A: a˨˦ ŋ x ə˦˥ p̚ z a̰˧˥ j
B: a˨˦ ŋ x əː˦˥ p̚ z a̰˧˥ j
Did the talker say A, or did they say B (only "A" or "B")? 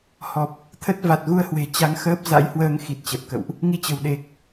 B